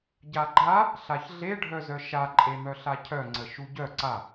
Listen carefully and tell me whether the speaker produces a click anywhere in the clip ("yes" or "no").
yes